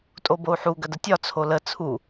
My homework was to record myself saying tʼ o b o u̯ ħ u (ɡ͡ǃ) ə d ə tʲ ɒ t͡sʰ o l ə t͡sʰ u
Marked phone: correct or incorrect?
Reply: incorrect